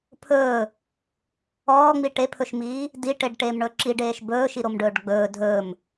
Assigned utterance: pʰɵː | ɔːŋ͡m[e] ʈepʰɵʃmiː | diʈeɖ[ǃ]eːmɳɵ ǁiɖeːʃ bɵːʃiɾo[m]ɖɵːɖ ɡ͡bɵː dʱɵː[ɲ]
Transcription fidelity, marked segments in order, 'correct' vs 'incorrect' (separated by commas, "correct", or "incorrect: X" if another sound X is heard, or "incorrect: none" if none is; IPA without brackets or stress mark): incorrect: i, incorrect: ʈ, correct, incorrect: m